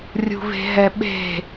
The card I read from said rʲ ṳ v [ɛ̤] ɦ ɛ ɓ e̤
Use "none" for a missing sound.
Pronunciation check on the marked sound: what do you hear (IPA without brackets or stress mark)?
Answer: e̤